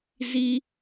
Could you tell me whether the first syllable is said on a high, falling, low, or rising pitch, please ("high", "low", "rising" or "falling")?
high